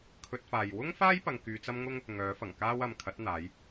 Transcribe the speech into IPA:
kʰ ɵ˧ t̚ f aː˨ j w ʊ˥ ŋ f aː˥ j p ɐ˧ ŋ k yː˧ t͡s ɐ˥ m ŋ ʊ˥ ŋ | ŋ œː˨˥ f ɐ˨˩ ŋ k aː˥ w ɐ˨ m kʰ ɐ˨˥ t̚ n̪ aː˨˧ j

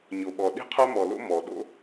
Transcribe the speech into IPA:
ɲ o˨ ɓ ɔ˨ ɗ i̤˦ qʰ œ˦ m ɔ˨ l o̰˦ m ɔ˨ ɗ o̰˦

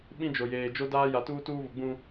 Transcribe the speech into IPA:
ɓ ĩ˦ d͡ʒ o˨ j eː˨ d͡ʒ o˦ d aː˦ j a˨ t uː˦ t uː˦ β ʊ˨ ɡ͡b ũ˦

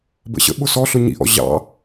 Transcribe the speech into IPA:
b ə̰ ɕ ə̰ ɓ ʊ s ɔ ɬ ʊ ɲ ḭ ʔ ɔ̰ ʑ ɑ̰

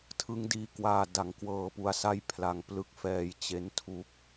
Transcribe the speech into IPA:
tʰ ɯ˦˥ ŋ d iː˧ k w aː˧ d a˩˦ ŋ k w ɤː˧ p u˧ a̯ s a˥˩ j pʰ l a˧ ŋ p l ɯ˦˥ k̚ f ɛː˧ j t͡ɕ e˦˥ n tʰ u˦˥ k̚

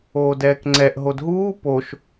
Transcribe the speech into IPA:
oː d ɛː k ŋ͡ǀ ɛ ʔ ɦ o d ɦ uː p o ʃ

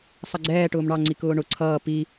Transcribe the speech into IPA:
sˤ ʌ ɡ͡ǀ ɛː ʈ ʊː m ɳ ɑ ŋ͡ǀ i k ʊː ɳ ʊ ǀʰ ʌː p i

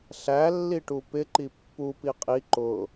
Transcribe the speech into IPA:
ɬ æ lː i ʈ u p ɪ ǃ i pː u p i qʼ i ǃ ʊ

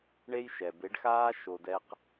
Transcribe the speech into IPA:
ɳ e˧ j ʃ ɛ˩ b e˩˧ ɖ x aː˧ ʃ o˩ d ɛ˧ q

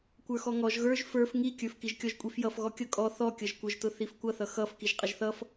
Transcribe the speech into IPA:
kʷ ə˞ x ɔ ŋ ɔ ʒ ɣ ə˞ ʒ f ə˞ f ŋ i kʲ ə˞ f k i ʒ kʲ ɔ ʒ kʷʼ i f j ʌ f ɣ ɔ kʲ ʌ kʼ ɔ θ ɔ kʲ ʌ ʒ kʷ ə˞ ʒ t ʊ θ i f kʷ ʌ θ ʌ x ʌ f k i ʒ qʼ ə ʒ θ ʌ f

